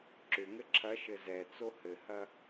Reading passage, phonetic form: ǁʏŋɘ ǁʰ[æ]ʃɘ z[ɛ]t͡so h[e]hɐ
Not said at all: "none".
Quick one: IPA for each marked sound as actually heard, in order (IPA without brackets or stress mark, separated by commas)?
ɐ, ɛ, ɘ